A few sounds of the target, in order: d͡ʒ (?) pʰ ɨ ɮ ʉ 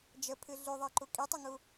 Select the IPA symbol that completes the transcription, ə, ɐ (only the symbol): ə